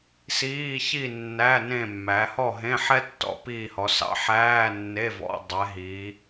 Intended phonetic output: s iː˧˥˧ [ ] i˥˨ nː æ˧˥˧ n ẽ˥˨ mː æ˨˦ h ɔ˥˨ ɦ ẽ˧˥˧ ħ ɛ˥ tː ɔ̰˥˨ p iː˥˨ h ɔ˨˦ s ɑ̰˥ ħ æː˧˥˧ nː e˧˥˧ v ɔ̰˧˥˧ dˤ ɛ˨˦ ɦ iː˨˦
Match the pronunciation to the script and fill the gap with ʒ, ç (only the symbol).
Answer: ç